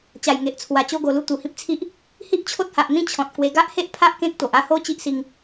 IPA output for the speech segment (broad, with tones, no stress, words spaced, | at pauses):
t͡ɕa˨˩j ŋe˨ʔt͡sʰwa˨˩ t͡ɕo˧ɡo˨˩lu˧ t̪u˨˩hĩ˦p̚t͡sʰi˦ʔ | hi˦ʔt͡ɕʰo˦t̚ha˨ʔn̪ĩ˥˧ t͡ɕʰɔ̃˨t̚kwe˧ ɡa˦ʔhe˦ʔ pʰa˦ʔ kẽ˦k̚t̪o˨ʔa˦ ho˦t͡ɕi˦ʔ si˧ŋ